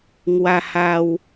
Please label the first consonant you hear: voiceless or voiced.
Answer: voiced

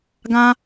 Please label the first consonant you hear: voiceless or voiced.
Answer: voiced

